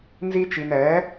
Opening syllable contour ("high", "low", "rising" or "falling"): high